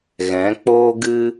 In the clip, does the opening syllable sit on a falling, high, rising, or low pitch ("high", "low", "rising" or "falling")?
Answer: rising